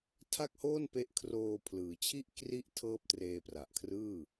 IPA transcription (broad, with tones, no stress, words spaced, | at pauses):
tʰa˥˩k̚hoː˥˩npe˦˥ʔkʰroː˧ pʰlɯː˩˦t͡ɕʰi˥˩ʔ kri˥˩ʔ tʰɤː˥˩p̚treː˧pra˨˩ʔkʰrɯː˥˩